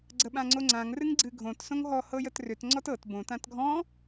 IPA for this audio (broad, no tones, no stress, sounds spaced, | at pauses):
ɡ͡ǀ ə ɓ ã ŋ͡ǀ o ŋ͡ǀ ã ŋ r ɨ ŋ ɡ͡ǀ ɨ ɡʱ õ t s õ ŋ ɦ ɔ h ɤ j ə t r ʏ t ŋ͡ǀ ɔ t ɤ t b õ t ã t ɡʱ ɔ̃